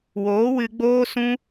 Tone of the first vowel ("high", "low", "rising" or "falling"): rising